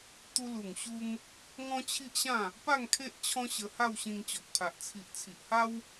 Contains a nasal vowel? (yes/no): yes